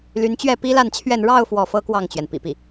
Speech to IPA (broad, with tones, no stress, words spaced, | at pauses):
ly˧˥nt͡ɕɥɛ˥˩ pi˥la˥˧nt͡ɕʰɥɛ˥˧n ɻɑ˥˧ʊ̯ fwɔ˥˩fɤ˥kwɑ˥˩ŋt͡ɕɥɛ˩n pḭ˨˩pi˥˩